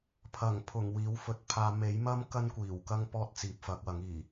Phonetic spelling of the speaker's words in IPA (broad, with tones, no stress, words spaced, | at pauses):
pʰɐ˨˩ŋpʰʊ˨˩ŋ wiː˨˥wfɵ˨˥t̚pʰaː˧ me˨˥jmɐ˥m kɐ˥nkʷiː˨˩wkɐ˥ŋ pɔː˥t̚t͡siː˨p̚fɐ˨˥k̚ wɐ˨˥ŋiː˨˩